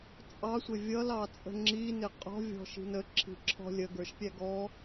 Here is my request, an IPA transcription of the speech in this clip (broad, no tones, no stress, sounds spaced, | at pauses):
t͡sʼ ɑ sʷ ɪ vʲ ʌ l ɑ t͡sʼ ə̤ ŋ͡ǁ i n ɪ qʼ ɔ̤ vʲ ɔ̤ ʃ i̤ n ə ǁʰ i̤ ǁʰ ɔ̤ lʲ ə ɡ ə˞ ʃ pʲ æ ɡ ɔ